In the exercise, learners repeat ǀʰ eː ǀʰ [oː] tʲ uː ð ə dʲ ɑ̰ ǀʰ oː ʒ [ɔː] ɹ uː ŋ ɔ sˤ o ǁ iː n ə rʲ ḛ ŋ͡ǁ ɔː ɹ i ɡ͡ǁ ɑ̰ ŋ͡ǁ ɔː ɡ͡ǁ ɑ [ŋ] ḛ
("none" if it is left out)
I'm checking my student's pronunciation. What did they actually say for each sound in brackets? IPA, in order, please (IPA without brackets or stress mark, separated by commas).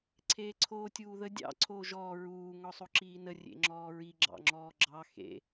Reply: oː, ɔː, x